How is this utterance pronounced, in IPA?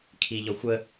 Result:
kʰiʎɔxʷə

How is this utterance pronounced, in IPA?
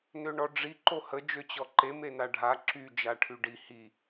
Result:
nøɳɔɖ͡ʐi ǃohə d͡ʒøt͡ɕɔǃe menaɖʱa ǁy d͡ʒaʈʰyɖi hi

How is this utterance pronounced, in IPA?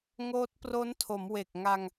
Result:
ŋoː˦˥t̚pro˦˥ntʰo˩˦m we˨˩k̚ŋa˧ŋ

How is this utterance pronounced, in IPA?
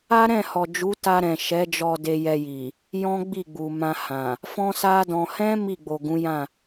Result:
a˦ɾɛ̃˦˨hɔ˨ d͡ʒu˨˦ta˧ ɾɛ̃˨ʃɛ˨˦d͡ʒɔ˧ de˧jɛ˧ji˨ | jɔ̃˦ɡ͡bi˦˨ɡ͡bu˨ mã˧hã˨ | fɔ̃˦sa˦dɔ̃˧ hɛ̃˦ mi˦˨ɡ͡bo˨ɡũ˨˦jã˦˨

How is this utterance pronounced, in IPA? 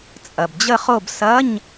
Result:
t͡sʼɐ˩bd͡ʑə˦˨χo˦˨b sɐ˧˥˧ɲ

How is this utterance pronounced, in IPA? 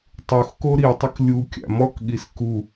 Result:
tˤuxko ɾitˤək lʲukʲa̰ mɔkɠis ku

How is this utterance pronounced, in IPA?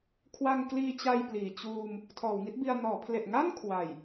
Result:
kʰwa˧ŋkliː˧t͡ɕa˧j pliː˨˩ t͡ɕuː˧m | tʰɔː˩˦wŋi˦˥t̚bi˧a̯ nɔː˩˦pʰle˨˩ʔŋa˥˩n kʰwa˨˩j

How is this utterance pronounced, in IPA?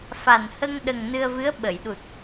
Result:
fa˨˩n hə˧ŋɗə˨˩ŋ nɨ˧ə̯vɨ˧˥ə̯ ɓə˨˩˨jɗu˨˩t̚

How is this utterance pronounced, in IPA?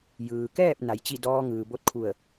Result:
jɯː˩kɛː˥˨p̚ na˩˧jt͡ɕi˥˨ dɔː˧ŋɯː˩ bo˧t̚kʰu˧˩ə̯

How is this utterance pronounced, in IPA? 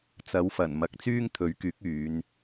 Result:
t͡sɐ˨˥wfɐ˨˩nmɐ˨k̚ t͡syː˥ŋt̪ʰɵ˨˥ɥkyː˨˥k̚yː˨˧n

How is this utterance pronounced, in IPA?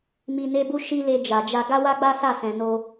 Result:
mi˧ne˦bu˦ ʃi˦le˧ d͡ʒa˨d͡ʒa˧ ɡa˦wa˦ɡ͡ba˦ sa˦˨sɛ̃˨no˧

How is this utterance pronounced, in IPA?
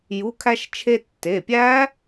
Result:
ju˩˧˩kʰæ˧ʃ t͡ʃʰe˧tːe˩˧˩pʲæ˦˥

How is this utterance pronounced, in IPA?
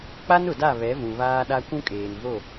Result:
k͡pa˦nʊ˨da˦˨ βɛ˨˦vũ˨ βaː˦ɗa˦ kʷũ˦kʼeː˨nvo˦˨

